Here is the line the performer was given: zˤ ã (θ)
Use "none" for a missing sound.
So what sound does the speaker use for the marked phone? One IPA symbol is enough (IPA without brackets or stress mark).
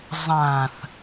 θ